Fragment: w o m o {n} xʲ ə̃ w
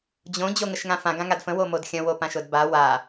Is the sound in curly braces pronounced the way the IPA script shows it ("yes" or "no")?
no